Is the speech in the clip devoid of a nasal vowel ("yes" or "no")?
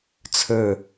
yes